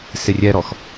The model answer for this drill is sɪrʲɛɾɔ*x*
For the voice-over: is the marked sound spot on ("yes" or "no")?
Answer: yes